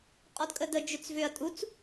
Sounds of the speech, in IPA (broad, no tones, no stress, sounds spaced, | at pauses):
qʼ ɔ d kʼ ə d ə d͡ʒ ʏ t͡s v ʏ ɐ̯ tʼ u t͡s